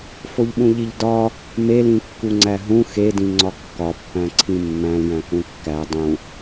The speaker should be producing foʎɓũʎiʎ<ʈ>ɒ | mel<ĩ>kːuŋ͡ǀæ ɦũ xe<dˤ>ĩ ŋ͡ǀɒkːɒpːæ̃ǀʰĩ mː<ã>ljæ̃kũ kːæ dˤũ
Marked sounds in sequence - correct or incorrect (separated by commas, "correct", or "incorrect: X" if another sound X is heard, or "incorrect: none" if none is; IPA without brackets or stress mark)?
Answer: incorrect: d, correct, incorrect: d, incorrect: æ̃